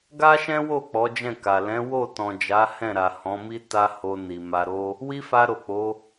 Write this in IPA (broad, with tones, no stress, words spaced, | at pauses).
ɡa˦ʃɛ̃˦wo˦˨ k͡pɔ˨˦d͡ʒɛ̃˦˨ka˨ lɛ̃˨˦wo˦˨tɔ̃˨ d͡ʒa˨˦hɛ̃˦˨ɾa˨ hɔ̃˨˦mi˦ ta˦ ho˧ ni˨ma˧ɾo˦ | wi˦fa˧ɾo˨ k͡po˨˦